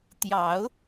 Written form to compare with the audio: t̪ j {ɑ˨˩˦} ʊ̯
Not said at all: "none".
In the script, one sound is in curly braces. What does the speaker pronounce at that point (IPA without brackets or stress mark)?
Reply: ɑ˨˩˦